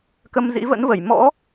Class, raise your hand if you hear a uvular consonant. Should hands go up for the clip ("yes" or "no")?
no